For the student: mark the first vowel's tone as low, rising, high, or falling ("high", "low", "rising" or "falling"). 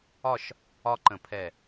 falling